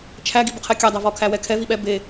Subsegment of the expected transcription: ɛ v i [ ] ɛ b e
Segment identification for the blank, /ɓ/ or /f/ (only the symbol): ɓ